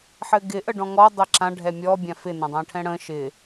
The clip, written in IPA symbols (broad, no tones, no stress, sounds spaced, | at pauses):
ħ ɘ ɡ ɪ ʔ ə ɖ ɔ̃ ŋ ɔ dˤ ə ǁ ã ɖʱ ɛ mʲ ɔ bʲ ã f ɪ n ã dˤ ã ʈʰ ɛ̃ ɽ ə̃ː ʃ ɪː